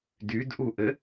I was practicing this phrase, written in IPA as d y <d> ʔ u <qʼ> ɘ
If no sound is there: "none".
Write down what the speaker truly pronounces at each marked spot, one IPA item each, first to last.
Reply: d, ʔ

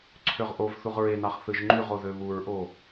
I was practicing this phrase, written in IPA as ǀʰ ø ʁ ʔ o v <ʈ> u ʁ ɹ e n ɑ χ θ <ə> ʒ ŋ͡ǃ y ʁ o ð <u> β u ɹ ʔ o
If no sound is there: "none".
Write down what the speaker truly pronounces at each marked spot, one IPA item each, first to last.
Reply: θ, ɯ, ø

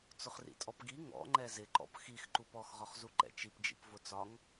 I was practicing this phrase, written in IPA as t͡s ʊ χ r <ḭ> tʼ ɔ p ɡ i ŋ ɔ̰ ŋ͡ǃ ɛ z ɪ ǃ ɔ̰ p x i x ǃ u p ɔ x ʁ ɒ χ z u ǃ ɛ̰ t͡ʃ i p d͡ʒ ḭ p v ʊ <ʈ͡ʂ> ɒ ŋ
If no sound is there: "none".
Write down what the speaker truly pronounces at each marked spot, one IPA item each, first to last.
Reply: ḭ, t͡s

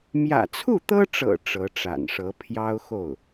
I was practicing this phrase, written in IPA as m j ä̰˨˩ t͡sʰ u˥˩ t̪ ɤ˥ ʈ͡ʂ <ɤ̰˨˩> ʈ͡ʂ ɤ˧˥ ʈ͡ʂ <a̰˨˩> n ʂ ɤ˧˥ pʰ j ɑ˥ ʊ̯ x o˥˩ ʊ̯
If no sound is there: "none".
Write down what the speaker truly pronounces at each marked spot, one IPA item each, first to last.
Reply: ɤ̰˨˩, a̰˨˩

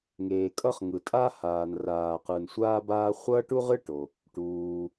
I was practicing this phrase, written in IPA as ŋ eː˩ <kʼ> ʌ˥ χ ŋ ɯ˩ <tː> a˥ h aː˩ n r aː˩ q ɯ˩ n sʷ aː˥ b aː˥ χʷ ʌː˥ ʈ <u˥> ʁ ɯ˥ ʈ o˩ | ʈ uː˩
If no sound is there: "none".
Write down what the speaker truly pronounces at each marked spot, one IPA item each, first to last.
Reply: kʼ, tʼ, u˥

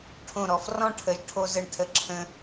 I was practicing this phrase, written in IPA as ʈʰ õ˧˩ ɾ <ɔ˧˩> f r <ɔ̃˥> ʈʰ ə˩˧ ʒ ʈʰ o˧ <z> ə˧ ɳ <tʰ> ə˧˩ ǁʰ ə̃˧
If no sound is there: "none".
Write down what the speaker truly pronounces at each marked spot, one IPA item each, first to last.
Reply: ɔ˧˩, ɔ̃˥, z, tʰ

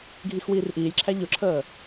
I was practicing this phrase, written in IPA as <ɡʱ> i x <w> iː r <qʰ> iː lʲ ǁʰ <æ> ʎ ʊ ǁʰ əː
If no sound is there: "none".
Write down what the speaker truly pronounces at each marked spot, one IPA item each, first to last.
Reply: ɡʱ, w, ʔ, æ

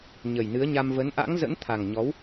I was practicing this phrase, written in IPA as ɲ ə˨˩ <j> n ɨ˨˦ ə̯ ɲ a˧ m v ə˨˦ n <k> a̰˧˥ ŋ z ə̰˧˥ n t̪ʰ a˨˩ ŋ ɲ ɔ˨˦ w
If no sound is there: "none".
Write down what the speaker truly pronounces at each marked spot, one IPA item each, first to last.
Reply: j, ʔ

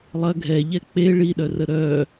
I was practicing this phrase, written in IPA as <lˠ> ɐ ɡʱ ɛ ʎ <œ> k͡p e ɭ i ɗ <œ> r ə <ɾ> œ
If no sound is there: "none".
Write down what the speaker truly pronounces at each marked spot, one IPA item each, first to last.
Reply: lˠ, ɛ, œ, ɾ

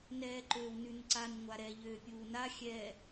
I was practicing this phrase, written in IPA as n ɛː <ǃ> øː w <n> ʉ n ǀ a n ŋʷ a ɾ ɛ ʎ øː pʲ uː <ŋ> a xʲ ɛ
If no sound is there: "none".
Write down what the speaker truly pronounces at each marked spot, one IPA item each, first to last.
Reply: ǃ, n, n

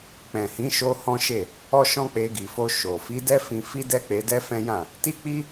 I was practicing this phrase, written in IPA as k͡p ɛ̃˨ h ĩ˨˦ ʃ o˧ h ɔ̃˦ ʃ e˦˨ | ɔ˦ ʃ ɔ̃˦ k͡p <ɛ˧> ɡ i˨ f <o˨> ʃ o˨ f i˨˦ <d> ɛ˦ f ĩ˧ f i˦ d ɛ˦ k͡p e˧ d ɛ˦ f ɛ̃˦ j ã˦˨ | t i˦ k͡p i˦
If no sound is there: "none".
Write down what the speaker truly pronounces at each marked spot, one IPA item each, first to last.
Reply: e˧, o˧, d

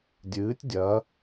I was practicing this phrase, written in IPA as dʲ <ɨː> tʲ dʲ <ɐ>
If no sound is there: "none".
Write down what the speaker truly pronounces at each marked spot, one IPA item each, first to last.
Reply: ɨː, ɐ

